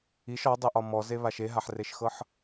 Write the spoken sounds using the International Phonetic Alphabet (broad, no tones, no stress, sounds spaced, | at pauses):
i ʃ ɒ dˤ e ʔ ɒ m ɔ z e β a ʃ e ɦ a ħ r e ʃ x ɤ ħ